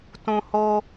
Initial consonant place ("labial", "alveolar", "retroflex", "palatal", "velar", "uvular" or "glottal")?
alveolar